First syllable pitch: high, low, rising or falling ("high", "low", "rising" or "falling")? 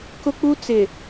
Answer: high